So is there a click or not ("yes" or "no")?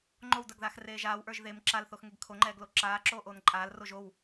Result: yes